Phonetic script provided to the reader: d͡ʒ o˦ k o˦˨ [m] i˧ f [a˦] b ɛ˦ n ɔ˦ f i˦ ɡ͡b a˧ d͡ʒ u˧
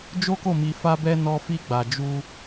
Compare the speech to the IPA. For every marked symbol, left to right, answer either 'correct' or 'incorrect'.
correct, correct

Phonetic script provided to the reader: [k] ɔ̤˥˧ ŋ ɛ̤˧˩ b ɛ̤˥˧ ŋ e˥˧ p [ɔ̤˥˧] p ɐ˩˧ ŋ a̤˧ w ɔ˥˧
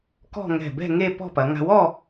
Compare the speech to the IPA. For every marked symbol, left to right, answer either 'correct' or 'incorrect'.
correct, correct

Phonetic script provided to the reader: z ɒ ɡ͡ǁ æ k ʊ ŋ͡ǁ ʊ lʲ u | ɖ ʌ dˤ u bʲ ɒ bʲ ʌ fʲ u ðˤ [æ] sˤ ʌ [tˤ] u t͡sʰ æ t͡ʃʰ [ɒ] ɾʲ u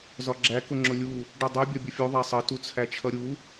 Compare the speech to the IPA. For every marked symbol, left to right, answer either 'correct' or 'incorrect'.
correct, incorrect: t, incorrect: ʌ

